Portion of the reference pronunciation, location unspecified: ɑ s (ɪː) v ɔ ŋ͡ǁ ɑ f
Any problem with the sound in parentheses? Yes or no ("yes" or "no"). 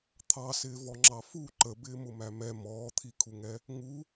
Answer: no